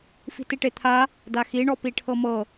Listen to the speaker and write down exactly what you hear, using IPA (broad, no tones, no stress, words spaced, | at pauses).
fi̤tiʈet̪ʰa | daxi ɳɔpiʈʰɤmɤ